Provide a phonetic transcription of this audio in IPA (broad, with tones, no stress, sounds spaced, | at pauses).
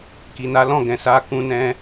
k i˨ n a˨˦ l ɔ̃˦˨ ɡ ɛ̃˨ s a˨˦ k ũ˧ n ɛ̃˧